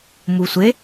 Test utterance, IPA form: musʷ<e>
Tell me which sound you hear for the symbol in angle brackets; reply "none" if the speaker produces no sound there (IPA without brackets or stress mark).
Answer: e